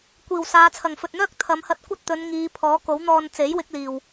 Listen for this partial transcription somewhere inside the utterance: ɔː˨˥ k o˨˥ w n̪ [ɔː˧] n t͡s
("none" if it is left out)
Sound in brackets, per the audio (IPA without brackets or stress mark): ɔː˧